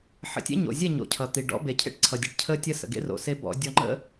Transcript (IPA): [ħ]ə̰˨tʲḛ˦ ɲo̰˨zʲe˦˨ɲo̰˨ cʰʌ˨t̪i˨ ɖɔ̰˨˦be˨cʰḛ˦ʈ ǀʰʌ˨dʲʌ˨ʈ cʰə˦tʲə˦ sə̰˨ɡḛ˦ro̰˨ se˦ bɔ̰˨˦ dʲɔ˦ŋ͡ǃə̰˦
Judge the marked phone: correct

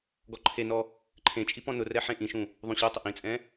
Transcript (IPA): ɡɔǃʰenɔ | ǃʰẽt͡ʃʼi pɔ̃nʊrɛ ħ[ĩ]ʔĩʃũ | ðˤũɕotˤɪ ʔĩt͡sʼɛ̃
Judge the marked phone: incorrect: ẽ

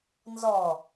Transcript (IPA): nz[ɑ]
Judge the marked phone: incorrect: ɔ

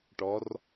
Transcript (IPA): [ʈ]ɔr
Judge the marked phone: correct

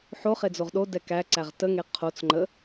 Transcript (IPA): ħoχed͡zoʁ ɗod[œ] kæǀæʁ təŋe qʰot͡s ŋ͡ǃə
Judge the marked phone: incorrect: ɛ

